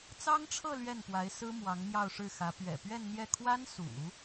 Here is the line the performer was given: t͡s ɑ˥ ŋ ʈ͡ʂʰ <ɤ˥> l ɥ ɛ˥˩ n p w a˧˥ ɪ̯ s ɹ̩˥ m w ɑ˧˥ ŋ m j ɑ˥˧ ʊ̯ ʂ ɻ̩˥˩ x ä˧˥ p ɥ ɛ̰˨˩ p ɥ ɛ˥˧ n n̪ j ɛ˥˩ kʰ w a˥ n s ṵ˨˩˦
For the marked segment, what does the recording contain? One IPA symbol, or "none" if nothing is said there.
ɤ˥˧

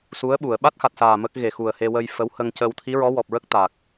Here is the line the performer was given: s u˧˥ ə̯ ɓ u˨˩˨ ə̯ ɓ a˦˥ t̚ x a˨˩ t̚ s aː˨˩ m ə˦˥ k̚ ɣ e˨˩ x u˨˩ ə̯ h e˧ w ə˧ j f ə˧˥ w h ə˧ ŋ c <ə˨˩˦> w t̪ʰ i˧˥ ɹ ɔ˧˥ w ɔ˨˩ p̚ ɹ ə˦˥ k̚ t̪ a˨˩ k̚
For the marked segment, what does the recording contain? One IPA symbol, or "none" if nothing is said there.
ə˧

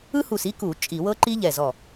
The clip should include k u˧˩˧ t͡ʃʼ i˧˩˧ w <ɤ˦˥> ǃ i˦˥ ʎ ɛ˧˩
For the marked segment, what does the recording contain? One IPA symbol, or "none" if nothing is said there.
ɤ˦˥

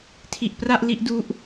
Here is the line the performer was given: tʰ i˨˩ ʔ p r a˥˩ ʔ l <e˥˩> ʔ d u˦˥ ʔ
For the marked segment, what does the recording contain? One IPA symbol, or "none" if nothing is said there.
i˥˩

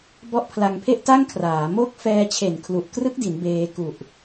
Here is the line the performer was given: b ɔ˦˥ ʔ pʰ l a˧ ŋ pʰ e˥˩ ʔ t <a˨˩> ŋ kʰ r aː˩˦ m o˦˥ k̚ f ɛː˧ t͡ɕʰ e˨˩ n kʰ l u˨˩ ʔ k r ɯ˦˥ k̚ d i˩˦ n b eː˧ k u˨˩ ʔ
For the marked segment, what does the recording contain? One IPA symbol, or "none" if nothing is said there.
a˥˩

